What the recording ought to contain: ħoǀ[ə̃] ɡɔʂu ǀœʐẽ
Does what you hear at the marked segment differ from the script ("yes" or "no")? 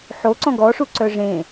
yes